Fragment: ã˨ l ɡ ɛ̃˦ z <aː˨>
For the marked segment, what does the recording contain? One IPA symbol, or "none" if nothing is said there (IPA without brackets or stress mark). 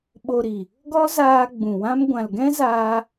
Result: aː˦